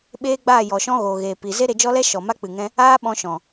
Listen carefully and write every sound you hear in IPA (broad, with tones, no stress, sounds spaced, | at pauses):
ɓ eː˦ ɡ͡b aː˦˨ j ɔ˨ ʃ ɔ̃˦ ɣ oː˨ ɣ eː˨ p i˨ z e˦ ɾ e˧ d͡ʒ ɔ˦ l ɛ˦ ʃ ɔ˨ m a˦ k͡p ɨ˨ ŋ ɛ̃˦ | aː˦ ɓ ɔ̃˧ ʃ ɔ̃˨